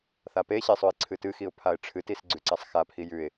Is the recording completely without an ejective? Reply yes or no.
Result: yes